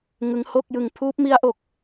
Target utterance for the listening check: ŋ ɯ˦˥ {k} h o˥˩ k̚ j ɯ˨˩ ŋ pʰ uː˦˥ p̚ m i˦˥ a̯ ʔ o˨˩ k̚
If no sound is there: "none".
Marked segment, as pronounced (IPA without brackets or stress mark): ŋ